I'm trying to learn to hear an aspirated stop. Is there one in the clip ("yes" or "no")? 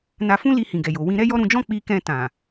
no